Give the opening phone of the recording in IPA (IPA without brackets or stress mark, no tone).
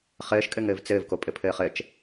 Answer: χ